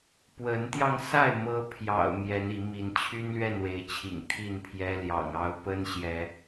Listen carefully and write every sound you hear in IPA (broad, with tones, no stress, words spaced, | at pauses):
pwə˨˦nt̪jɑ˧ŋsa˥˨ɪ̯ mɤ˦ pʰjɑ̰˨˩ʊ̯ mjɛ˨˦ni˨˦mi˨˦n t͡ɕʰy˦nlɥɛ˥˨nwe˨˦ɪ̯t͡ɕʰḭ˨˩ŋ t̪ʰi˥˨npʰjɛ˦ljɑ̰˨˩ŋ ɑ˨˦ʊ̯ pə˦nɕjɛ˨˦